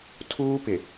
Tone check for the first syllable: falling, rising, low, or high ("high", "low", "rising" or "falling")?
high